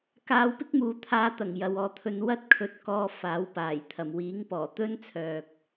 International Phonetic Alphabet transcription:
k aː˧ w p ɪ˥ k̚ m uː˨˧ t̪ʰ aː˧ t̪ ɐ˨˩ ŋ j ɐ˨ w ɔː˨˧ t̪ʰ ɵ˧ n w ɐ˥ t̚ kʰ ɵ˧ t̚ k ɔː˧ f aː˨˥ w p aː˨˩ j t̪ʰ ɐ˨˩ m w iː˨˥ ŋ p ɔː˨˩ t̪ ɵ˥ n t͡sʰ œː˨ k̚

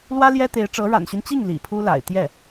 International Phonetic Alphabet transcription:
l w ä˥ l j ɛ˥ t̪ e˧˥ ɪ̯ ʈ͡ʂ ɤ˧˥ ɻ a̰˨˩ n ɕ y˦ n t͡ɕ i˥˩ ŋ l ḭ˨˩ pʰ u˥ l a̰˨˩ ɪ̯ t̪ j ɛ˥˩

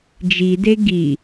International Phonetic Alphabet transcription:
d͡ʒ i d e ɡ i

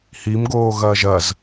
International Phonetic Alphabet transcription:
h i m ɡ oː ɣ ɐː ʒ ɐ z

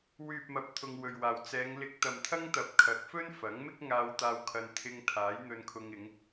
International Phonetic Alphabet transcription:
w yː˨ p̚ m ɐ˨˥ p̚ t̪ʰ ʊ˧ ŋ w ɵ˨ ɥ w aː˨ w t͡s ɛː˨˧ ŋ l ɪ˧ k̚ t̪ ɐ˨ m t̪ʰ ɐ˥ ŋ t̪ ɐ˨ p̚ kʰ ɐ˨˥ k̚ f ɵ˥ n f ɐ˨˥ ŋ m ɪ˥ k̚ ŋ aː˧ w t̪ aː˧ w kʰ ɐ˧ n t̪ʰ ɪ˧ ŋ t̪ʰ aː˨˥ j n̪ ɵ˧ n kʰ ʊ˧ ŋ ɪ˨˧ ŋ

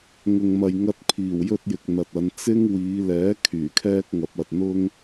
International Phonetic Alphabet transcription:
ŋ ʊ˨ ŋ m ɐ˨ j ŋ ɐ˧ t̚ pʰ iː˨˩ w j ɵ˥ t̚ j ɪ˨ k̚ n̪ ɐ˨ t̚ ɐ˨˧ n t͡s ɪ˥ ŋ w iː˨˧ l ɛː˨˥ kʰ yː˨˩ kʰ ɛː˥ k̚ ŋ ɐ˨˥ p̚ ɐ˨ t̚ n̪ ʊ˥ ŋ

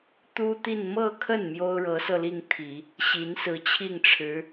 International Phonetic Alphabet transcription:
t̪ u˥ t̪ i˥˧ n m ɤ˥˧ kʰ ə˥˩ n m j o˥ ʊ̯ ɻ ɤ˧˥ s ɤ˧ l i˥˩ ŋ t̪ʰ i˨˩˦ | ɕ i˧˥ n s ɹ̩˧˥ t͡ɕʰ i˥˩ ŋ ʈ͡ʂʰ ɻ̩˧˥

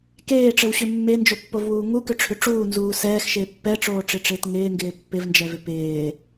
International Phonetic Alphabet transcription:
k eː ʈ͡ʂ ɘ w ɕ ʏ mː e n d͡ʒ o pː o v w uː ŋ u k ʏ ʈ͡ʂʰ ʏ ʈ͡ʂ uː n z uː s ɛː x ʃ ɪː pː ɛ ʈ͡ʂ oː ʈ͡ʂ ɪ ʈ͡ʂ ɪː t ŋ ɪː ŋ ɡ ɪː pː ɪ v n d͡ʒ ɛ v ɪ p ɪː

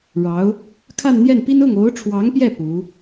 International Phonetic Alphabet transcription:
ɻ ɑ˧˥ ʊ̯ | kʰ a˥˧ n n̪ j ɛ˥˩ n p i˥ n ʊ˥˩ ŋ o˧˥ ʊ̯ ʈ͡ʂʰ w ɑ˧˥ ŋ p j ɛ˥˩ p u˧˥

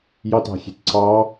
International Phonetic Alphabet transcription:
j ɑ t ɑ̤ xʲ e̤ t ǀ ɑ

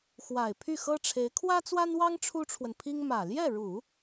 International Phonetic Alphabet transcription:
x w a˨˩ ɪ̯ pʰ y˥˩ x ɤ˥ ʈ͡ʂʰ e˧˥ ɪ̯ kʰ w ä˥ t͡s w a˥ n w ɑ˥ ŋ ʈ͡ʂʰ u˥ ʈ͡ʂʰ w ə˨ n pʰ i˥ ŋ m ä˨˩ l j ɛ˥˩ ɻ u˨˩˦

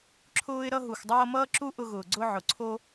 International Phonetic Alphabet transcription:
ǁʰ ʊː˦ ɪ̯ ɾ ʌ˧ ɦ u˨ x dˤ ʌː˧ m ʌː˦ ǁ u˦ ʔ ʊ˧ ɣ ʊː˨ ɡ͡ǀ ʊ˧ ʕ ʊ˨ ǀʰ o˦

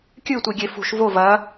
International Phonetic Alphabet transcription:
kʲ ɨ tʷ i ɡʲ e f ṳ ʃ v o v ɐ

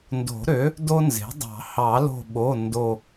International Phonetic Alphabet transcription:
n d o̤˨˩˦ ɾ ø˩˥ | d o˥ n z e̤˩˥ dˤ ɑ̤˨˩˦ h ɑ˨˩˦ l o̤˧˩ ɓ o˩˧˩ n d o˧˩

